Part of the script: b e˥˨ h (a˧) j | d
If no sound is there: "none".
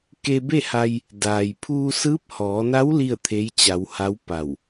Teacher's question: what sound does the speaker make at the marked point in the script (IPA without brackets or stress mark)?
a˧